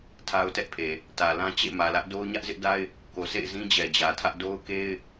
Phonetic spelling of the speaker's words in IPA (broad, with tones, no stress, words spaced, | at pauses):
tʰa˦ʊ̯tɛ˦ʔpʰe˨ | tä˨lã˦ t͡ɕḛ˦˨mä˨lä˦ʔdo˦ʊ̯ ɲä˦ʔzɪ˦ʔda˦ɪ̯ | ko˨sḛ˦˨ɪ̯zĩ˦ d͡ʑɛ˨d͡ʑä˨tʰä˦ʔ do˦ʊ̯ke˦ɪ̯